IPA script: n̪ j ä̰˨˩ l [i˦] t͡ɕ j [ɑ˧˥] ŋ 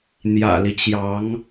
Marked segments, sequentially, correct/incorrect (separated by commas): correct, correct